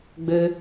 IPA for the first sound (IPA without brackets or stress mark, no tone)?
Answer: ɡ͡b